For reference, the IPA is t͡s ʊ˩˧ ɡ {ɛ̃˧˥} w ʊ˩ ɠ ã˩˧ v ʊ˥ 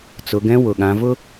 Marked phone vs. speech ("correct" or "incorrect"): correct